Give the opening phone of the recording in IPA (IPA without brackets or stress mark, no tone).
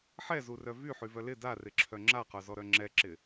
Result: ħ